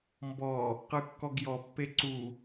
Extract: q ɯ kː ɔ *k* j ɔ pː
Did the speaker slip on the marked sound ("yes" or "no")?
yes